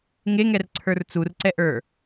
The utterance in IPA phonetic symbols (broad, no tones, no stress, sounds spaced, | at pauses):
ŋ e ŋ ɛ r ǀʰ ə˞ r t͡s u r ǀ ɛ ʔ ə˞